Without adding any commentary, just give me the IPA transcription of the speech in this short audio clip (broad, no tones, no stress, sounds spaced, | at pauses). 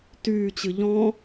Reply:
t yː t͡ɕ ɨ ʎ ɔ̃